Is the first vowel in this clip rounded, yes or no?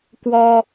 yes